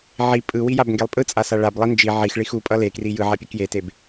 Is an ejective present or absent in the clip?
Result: present